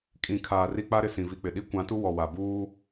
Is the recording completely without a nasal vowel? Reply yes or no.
no